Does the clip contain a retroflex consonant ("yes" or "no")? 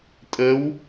no